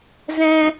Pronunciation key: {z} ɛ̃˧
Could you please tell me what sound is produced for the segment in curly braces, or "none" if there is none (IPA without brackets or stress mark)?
z